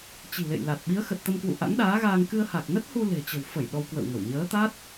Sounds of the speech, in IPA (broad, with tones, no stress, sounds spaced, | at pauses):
t͡ɕ i̤˨˩ l ḛ˧˨ j l a˨˩ t̚ ɓ i˨˦ ə̯ x ə˨˩ t̚ t̪ ə˧ m k w ṵ˧˨ ʔ a̰˧˥ ŋ ɗ aː˨˦ ɣ aː˧ ŋ k ɨ˧ ə̯ h a˨˩ k̚ n ə˦˥ t̚ h u˧ l e̤˨˩ t͡ɕ ə̤˨˩ w f ə˧˩ j ɗ ɔ˧ w k w ə̰˧˨ w ŋ ə˧˩ w ɲ əː˨˦ t̪ a˦˥ t̚